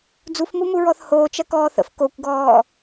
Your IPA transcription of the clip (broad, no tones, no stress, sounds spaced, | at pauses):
d͡z u f m u m u ɹ ɔ θ h oː t͡ʃ ɐ k ɔː θ ə̰ f k o kʷ ɡ ɔː